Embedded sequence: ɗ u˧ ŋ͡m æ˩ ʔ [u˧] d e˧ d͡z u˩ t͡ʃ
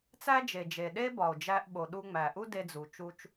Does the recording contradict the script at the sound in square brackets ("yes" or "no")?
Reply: yes